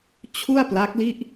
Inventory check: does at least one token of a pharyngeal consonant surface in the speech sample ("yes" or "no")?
no